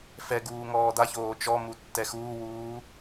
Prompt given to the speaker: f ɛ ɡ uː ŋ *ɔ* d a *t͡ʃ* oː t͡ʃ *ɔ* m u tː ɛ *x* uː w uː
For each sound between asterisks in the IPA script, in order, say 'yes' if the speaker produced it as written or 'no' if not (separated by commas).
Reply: no, no, yes, yes